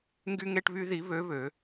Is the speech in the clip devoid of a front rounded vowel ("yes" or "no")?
no